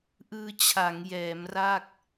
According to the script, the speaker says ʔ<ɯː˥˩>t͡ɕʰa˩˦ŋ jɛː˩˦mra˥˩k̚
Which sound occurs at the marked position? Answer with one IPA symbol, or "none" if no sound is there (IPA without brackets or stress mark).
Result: ɯː˧